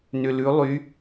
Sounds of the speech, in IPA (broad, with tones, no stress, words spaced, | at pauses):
nʏ˧lʉ˧˥lˠy˧˥